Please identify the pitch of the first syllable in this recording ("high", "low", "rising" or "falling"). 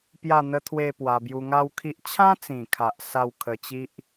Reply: falling